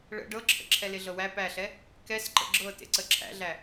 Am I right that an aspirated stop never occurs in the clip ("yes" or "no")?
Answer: no